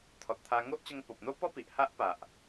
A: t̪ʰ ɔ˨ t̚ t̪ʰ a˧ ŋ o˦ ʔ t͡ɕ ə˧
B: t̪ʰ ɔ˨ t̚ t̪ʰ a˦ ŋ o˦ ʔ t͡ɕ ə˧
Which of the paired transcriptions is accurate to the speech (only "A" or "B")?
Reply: A